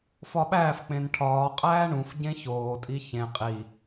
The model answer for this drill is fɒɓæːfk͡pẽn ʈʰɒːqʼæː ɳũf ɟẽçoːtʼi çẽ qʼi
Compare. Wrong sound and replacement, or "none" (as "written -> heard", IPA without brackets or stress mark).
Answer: none